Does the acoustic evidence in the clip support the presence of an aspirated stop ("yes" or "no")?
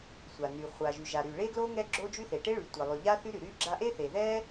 no